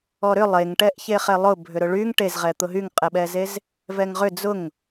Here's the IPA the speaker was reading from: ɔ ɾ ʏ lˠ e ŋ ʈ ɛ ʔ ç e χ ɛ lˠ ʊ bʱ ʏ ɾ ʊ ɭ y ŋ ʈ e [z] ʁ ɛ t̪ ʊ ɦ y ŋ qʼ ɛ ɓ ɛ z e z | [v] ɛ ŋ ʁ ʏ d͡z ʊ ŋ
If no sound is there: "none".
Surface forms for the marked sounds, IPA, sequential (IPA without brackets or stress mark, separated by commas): z, v